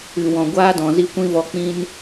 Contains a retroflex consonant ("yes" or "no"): no